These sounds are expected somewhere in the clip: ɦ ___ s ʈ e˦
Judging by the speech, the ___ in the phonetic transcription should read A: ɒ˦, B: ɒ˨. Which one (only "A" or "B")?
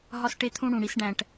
A